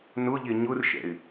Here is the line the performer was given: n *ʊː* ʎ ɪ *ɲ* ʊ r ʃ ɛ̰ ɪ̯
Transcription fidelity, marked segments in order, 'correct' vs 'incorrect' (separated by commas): incorrect, correct